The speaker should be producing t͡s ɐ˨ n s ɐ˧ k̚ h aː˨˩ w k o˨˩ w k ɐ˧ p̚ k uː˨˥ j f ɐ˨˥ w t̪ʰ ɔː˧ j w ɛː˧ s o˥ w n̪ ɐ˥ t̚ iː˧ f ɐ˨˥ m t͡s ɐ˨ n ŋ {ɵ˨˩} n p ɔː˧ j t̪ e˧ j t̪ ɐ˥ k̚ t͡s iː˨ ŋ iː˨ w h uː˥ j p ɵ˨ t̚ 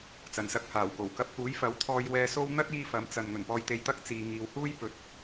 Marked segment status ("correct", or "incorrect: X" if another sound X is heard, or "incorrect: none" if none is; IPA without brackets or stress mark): correct